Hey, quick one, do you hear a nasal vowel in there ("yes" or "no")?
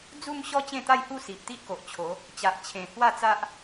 yes